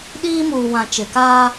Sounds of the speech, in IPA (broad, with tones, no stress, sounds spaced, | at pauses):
ɗ iː˦ m uː˨ w ã˨ t͡ʃ ɪ˨ k aː˦